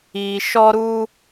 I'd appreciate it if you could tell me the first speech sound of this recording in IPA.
iː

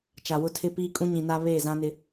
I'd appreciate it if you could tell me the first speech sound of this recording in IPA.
t͡ʃ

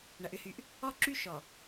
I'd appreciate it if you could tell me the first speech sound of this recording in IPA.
ɳ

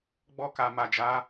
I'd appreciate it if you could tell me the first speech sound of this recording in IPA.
ɡ͡b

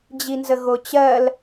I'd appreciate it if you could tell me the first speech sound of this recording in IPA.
d͡ʑ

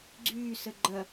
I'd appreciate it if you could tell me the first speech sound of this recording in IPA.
ɡ͡ǀ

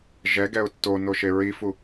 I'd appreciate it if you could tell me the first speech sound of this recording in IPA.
ʒ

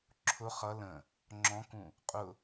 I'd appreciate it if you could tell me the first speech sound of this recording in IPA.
ǁʰ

